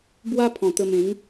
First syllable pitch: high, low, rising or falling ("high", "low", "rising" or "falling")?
high